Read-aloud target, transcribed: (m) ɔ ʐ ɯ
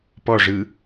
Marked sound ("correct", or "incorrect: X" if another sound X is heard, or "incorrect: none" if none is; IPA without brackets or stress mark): incorrect: p